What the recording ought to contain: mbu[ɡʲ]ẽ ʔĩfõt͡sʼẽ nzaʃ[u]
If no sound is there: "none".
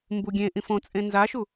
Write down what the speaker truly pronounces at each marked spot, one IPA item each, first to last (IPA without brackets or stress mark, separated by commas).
ɡʲ, u